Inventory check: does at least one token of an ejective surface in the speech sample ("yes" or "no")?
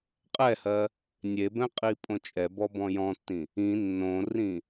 yes